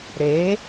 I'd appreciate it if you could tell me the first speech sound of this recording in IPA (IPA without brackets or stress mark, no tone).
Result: ɾ